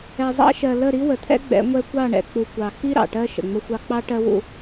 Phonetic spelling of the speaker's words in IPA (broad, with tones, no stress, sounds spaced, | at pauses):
ɛ˨ zˤ ɑ̰˦ ʃ ɜ˨ l ə˦˨ ɾ i˦ w ə˨ t̪ʰ ɛ̰˦ ɡ͡b ɛ̰˨˦ ŋʷ ɛ˦ kʷ ɑ˦˨ ɳ ɛ̰˨ k͡p u˨ kʷ ɑ˨ x i˦ ɾ ɑ̰˨ ʈ ɜ˦ ʃ ə̰˨ ŋ͡m ə˦ xʷ ɑ˦ k͡p ɑ˦ ʈ ɜ˦ w ṵ˦